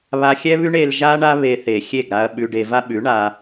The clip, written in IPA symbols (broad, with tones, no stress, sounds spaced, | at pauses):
β a˧ xʲ ɛ˦ β ʉ˦ ɳ e˧ l ʒ a˦ ɳ a˦ β e˧ θ e˨ xʲ e˦˨ ɡ ɾ a˧ ɐ̯ ɓ ʉ˧ ɖ e˧ v a˦ ɓ ʉ˨˦ ɳ a˧